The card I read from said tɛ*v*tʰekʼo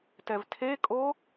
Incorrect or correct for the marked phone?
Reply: correct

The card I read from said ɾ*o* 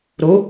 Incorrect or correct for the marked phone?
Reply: incorrect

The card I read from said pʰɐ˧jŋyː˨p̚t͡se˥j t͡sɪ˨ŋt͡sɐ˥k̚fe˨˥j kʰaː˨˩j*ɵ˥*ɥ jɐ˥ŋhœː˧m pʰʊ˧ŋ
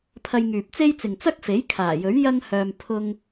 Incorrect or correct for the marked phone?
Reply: incorrect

